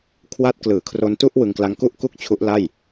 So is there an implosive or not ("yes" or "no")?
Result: no